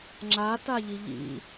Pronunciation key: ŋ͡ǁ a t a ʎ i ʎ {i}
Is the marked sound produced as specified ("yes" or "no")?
no